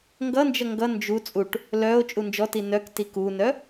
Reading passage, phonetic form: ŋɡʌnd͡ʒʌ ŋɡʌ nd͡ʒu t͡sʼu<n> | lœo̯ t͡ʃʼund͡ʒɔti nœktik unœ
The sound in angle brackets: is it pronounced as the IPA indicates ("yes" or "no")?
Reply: no